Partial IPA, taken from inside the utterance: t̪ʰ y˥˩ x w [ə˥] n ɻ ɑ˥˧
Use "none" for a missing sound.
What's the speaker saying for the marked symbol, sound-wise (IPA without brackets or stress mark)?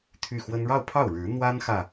ə˥